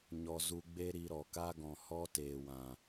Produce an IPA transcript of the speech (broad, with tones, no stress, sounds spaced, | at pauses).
ɲ ɔ˧ z u˧ ɡ͡b e˦ ɾ i˧ ɾ ɔ˨ k a˦ ɡ ɔ̃˨ h ɔ˦ t eː˨ w ã˨